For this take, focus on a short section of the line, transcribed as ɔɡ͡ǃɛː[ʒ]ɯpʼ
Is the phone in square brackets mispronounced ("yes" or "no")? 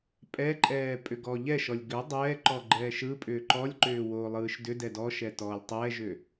yes